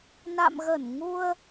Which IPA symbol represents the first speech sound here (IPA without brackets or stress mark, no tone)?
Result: n